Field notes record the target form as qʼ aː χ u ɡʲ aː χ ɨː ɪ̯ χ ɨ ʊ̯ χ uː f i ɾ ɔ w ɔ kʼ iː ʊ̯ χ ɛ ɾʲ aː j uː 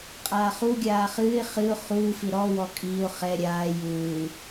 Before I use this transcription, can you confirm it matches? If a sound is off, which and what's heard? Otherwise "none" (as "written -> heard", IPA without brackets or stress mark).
none